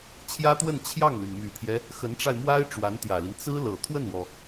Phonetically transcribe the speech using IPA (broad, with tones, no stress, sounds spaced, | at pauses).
t͡ɕʰ j ä˥ t̪ w ə˥˧ n t͡ɕʰ j ɑ˥˩ ŋ l y˩ n m y˨˩ t̪ʰ j ɛ˦ | x ə˧˥ n ʈ͡ʂ a˧ ɪ̯ m w a˥ ɪ̯ ʈ͡ʂ w a˧˥ n t̪ j ä˨˩ l i˦ n t͡s ɹ̩˥ l ɤ˨˩ t̪ʰ w ə˥˩ n w ɔ˩